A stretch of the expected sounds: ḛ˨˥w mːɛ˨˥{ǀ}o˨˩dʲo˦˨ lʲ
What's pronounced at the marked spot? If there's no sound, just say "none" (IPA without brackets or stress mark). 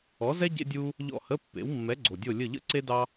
ɡ͡ǀ